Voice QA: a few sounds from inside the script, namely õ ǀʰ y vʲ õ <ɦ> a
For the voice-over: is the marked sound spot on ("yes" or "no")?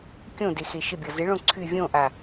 no